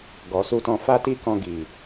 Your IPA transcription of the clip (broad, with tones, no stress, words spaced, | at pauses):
ɡɔ˨su˧tɔ̃˧ fa˦ti˦kɔ̃˧ ɡi˨